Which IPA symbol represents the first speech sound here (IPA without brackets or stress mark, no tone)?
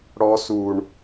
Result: ɽ